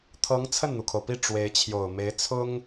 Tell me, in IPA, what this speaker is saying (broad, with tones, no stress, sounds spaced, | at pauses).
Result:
t̪ʰ ɤ˧˥ ŋ t͡sʰ ə˥˩ n n̪ u˩ kʰ o˩ ʊ̯ p i˥˩ ʈ͡ʂ w e˧˥ ɪ̯ t͡ɕʰ j o˨˩ ʊ̯ m e˧˥ ɪ̯ t͡sʰ ʊ˥ ŋ